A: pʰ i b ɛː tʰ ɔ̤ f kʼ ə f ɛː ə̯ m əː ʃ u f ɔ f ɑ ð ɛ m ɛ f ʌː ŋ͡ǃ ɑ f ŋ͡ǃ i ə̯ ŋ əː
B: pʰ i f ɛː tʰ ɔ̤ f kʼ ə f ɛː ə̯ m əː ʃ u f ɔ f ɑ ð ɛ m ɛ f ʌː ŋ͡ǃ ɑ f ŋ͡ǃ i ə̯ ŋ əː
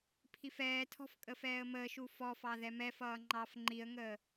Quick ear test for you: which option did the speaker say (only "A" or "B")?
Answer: B